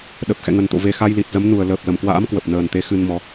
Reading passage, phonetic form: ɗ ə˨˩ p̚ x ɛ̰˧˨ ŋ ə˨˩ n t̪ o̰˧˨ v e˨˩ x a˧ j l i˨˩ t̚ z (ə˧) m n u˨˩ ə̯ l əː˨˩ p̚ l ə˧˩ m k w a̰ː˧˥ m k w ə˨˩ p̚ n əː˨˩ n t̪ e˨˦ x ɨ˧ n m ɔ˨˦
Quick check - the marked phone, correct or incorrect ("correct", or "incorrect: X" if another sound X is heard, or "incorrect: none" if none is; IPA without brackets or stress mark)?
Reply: incorrect: ə˨˦